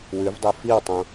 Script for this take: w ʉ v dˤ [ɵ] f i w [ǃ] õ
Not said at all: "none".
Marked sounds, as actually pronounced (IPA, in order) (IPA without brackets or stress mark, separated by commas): ɵ, tˤ